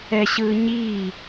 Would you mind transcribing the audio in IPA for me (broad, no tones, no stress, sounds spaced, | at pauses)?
ɛ ɕ ɯː ɲ iː